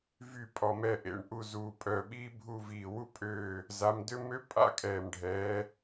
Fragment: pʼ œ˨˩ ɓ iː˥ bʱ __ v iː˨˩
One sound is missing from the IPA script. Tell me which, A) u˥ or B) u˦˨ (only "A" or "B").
B